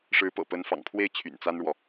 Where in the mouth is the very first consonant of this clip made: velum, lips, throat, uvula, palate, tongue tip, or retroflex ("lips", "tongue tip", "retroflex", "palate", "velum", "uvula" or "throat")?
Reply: retroflex